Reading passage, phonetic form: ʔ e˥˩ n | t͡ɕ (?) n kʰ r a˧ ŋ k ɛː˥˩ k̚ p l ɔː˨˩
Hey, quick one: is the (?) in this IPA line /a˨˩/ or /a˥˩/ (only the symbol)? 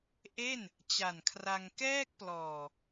a˨˩